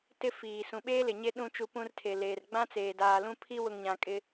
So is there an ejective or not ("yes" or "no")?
yes